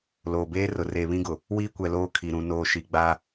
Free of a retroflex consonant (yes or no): yes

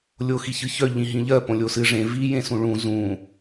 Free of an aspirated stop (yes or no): yes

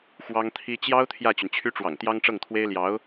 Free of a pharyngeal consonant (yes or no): yes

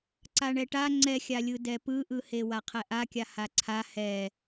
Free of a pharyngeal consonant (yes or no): yes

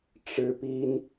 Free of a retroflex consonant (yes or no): no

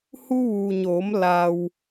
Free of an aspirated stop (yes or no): yes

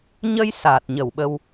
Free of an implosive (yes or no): no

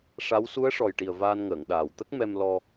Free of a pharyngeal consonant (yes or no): yes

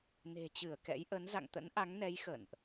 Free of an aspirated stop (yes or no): yes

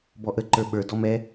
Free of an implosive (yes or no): no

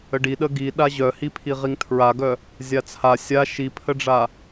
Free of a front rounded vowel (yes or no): no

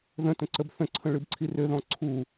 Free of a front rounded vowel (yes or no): no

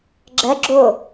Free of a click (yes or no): no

